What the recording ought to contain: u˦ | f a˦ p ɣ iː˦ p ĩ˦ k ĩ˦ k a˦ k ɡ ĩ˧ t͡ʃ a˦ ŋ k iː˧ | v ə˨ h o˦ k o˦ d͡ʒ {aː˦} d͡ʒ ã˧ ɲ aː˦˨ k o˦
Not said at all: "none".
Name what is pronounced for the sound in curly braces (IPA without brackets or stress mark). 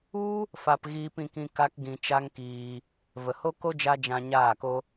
a˦